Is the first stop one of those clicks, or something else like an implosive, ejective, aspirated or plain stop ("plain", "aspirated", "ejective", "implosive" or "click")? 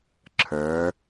click